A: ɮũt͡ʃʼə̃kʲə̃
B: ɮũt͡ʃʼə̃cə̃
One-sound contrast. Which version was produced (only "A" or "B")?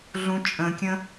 A